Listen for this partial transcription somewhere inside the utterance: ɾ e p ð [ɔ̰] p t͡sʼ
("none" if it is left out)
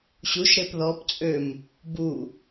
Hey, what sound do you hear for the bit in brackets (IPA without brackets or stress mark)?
ɔ